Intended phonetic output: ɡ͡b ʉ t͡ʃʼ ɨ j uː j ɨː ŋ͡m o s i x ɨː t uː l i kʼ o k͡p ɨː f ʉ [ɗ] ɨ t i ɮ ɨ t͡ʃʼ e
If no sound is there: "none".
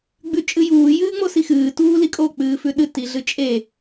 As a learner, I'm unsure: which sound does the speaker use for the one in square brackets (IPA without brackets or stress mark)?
ɗ